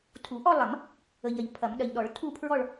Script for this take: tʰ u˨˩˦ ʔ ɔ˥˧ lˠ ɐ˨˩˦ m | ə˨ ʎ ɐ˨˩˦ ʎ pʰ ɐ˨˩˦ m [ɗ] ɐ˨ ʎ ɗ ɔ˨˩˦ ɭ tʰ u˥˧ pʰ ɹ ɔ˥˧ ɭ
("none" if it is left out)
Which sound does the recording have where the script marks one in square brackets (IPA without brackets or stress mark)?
ɗ